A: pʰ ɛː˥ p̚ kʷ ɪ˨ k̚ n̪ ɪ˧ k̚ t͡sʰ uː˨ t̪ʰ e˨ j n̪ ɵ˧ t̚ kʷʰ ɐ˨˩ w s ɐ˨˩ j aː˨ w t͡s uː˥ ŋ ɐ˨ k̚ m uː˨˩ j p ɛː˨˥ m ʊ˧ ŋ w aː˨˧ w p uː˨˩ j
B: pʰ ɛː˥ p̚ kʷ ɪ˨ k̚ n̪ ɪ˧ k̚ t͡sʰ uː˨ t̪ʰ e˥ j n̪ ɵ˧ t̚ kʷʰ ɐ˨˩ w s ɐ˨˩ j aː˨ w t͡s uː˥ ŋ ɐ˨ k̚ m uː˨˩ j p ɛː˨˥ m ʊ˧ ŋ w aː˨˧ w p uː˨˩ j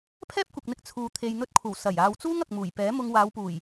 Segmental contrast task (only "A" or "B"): A